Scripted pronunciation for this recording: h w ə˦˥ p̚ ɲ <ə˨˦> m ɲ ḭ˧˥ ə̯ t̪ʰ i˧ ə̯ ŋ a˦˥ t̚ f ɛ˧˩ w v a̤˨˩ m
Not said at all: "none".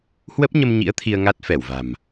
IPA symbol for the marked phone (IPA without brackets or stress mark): ə˧